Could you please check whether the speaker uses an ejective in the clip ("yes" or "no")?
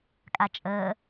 yes